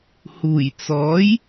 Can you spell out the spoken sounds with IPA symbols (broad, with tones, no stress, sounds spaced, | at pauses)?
h uː˨˩ j t͡s ɔː˨˥ j